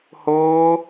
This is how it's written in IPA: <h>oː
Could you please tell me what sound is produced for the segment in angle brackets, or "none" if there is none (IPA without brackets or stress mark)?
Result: h